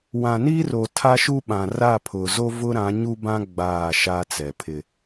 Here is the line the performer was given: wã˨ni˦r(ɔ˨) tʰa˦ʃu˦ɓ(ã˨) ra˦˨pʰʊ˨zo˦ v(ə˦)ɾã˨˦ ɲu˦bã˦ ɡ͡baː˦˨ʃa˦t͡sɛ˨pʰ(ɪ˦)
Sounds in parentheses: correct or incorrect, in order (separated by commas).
incorrect, correct, incorrect, correct